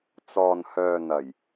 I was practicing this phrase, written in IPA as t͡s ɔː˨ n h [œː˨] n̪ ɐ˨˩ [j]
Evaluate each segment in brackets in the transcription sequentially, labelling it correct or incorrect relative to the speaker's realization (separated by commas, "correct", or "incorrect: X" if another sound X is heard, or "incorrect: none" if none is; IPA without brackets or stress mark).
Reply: correct, correct